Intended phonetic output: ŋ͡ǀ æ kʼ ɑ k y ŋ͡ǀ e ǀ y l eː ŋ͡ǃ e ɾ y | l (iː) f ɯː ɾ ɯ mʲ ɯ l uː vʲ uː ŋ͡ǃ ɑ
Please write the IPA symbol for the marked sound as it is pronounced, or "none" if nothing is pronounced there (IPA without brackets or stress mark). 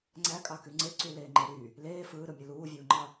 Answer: eː